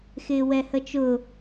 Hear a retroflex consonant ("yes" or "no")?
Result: no